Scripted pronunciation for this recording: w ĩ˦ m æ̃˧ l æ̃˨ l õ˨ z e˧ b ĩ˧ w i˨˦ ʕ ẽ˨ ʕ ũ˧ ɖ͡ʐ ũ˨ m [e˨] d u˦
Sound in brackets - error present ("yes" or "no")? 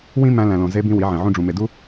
no